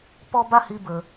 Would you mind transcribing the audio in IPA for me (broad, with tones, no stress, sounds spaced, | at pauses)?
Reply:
p ɔ˦ b a˦ h i˧ b ə˨